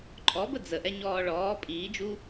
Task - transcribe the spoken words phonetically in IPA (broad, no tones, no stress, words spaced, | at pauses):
ǃʼɔbə d͡zəʔɛ ɲɔːɭɔː pʼiːd͡ʒu